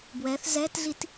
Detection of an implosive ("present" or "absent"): absent